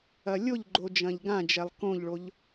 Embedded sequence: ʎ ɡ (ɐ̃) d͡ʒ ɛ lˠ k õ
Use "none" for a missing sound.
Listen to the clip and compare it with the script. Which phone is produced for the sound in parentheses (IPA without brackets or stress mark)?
ã